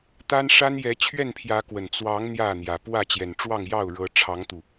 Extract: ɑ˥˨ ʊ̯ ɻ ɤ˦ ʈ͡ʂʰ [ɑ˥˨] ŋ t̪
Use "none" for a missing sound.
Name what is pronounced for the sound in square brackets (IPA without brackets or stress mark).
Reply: ɑ˨˦